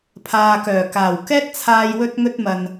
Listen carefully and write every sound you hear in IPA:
pʰ aː˨ k œː˨˩ k aː˨˩ w k ɛː˥ t̚ t͡sʰ aː˧ j w ɵ˧ t̚ ŋ ɵ˧ t̚ m ɐ˨ n

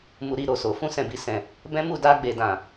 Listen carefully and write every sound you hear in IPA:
m u˧ ɾ i˧ ɾ o˨ s o˨ f ũ˧ s ɛ̃˨ b i˨ s ɛ̃˨ | b ɛ̃˦ m u˦˨ d a˧ ɡ͡b e˨ d ã˨

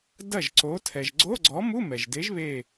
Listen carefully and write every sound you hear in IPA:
d ɐ˥˩ ʒ ǀ o˨˥ tʰ ɛ˩ ʒ ɡ͡ǀ o˧˥˧ ɡ͡ǀ ɔ˨˥ m u˧˥˧ m ɛ˩ ʒ d e˨˥ ʒ β e˧˩

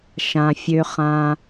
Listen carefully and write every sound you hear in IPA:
ʃ ã˩ fʲ ø˩ χ ãː˩

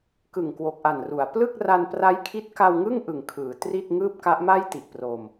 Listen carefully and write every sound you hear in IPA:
k ɯ˨˩ ŋ k w o˨˩ k̚ ʔ a˨˩ n r u˩˦ a̯ p l ɯ˥˩ k̚ r a˧ n p r a˦˥ j kʰ i˦˥ t̚ k a˧ w ŋ ɯ˥˩ ŋ ʔ ɯ˨˩ ŋ kʰ ɯː˩˦ t r i˥˩ t̚ ŋ ɯː˥˩ p̚ k a˦˥ ʔ m a˥˩ j t i˨˩ ʔ p r o˧ m

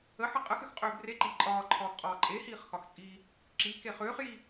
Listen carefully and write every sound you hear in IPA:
ə ħ ə qʼ ə x ʏ x qʼ ʏː b r e ǃ i ǃʼ ɒː ǃʰ ɒː x qʼ ɒː ǃʼ e h iː χ x ɒ x t͡sʼ iː | ǁ i k e χ ʏː χ j i

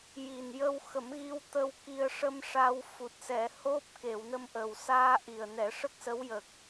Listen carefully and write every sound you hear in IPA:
j i˨˩ n j ə˧ w x ə˨˩˦ m ɣ i˧ w t̪ ə˧ w k i˧ ə̯ ʂ ə˧ m ʂ a˧ w f u˨˩ t̚ s ɛ˨˩˦ h o˦˥ p̚ k e˨˩˨ w n ə˧ m ʔ ə˨˩ w s aː˧ ʔ i˨˩ ə̯ n ɛ˨˩˦ ʂ ə˦˥ k̚ s ə˧˥ w j ə˨˩ k̚

